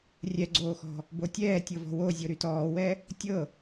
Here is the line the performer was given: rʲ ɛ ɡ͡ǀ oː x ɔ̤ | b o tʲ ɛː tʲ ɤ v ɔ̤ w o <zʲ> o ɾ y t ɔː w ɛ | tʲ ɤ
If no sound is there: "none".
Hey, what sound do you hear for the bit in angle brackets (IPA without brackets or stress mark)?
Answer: zʲ